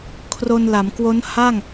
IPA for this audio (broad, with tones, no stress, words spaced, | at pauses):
kʰro˧nla˩˦mkwo˦˥n ha˥˩ŋ